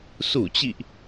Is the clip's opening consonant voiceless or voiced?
voiceless